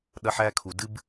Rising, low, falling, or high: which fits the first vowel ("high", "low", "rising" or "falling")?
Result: high